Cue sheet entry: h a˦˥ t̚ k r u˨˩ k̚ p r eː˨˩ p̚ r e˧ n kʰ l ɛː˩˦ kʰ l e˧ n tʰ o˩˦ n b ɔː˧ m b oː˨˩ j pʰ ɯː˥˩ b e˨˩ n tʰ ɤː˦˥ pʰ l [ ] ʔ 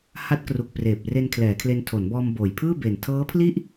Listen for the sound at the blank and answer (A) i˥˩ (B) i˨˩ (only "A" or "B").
A